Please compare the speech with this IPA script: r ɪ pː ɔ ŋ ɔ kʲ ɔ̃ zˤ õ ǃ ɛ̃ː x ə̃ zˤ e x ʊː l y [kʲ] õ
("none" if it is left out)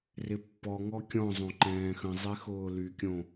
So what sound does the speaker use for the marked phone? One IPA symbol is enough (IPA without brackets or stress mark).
kʲ